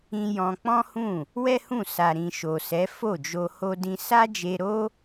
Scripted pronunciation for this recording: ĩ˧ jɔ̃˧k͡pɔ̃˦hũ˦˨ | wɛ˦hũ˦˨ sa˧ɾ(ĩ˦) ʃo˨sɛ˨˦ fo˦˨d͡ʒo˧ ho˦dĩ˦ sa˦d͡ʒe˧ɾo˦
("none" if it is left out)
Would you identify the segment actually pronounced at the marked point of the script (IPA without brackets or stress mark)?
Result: ĩ˧